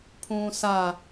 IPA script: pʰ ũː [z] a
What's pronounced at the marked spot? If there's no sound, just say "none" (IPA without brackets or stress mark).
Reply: s